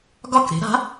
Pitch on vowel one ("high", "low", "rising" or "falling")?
falling